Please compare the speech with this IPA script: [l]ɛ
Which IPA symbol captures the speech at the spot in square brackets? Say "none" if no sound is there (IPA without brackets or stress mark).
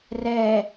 r